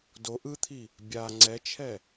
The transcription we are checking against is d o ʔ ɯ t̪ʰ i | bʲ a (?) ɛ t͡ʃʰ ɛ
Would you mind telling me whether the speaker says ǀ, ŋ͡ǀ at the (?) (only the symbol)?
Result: ŋ͡ǀ